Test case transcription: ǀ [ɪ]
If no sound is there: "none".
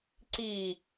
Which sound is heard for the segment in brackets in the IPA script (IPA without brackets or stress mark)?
i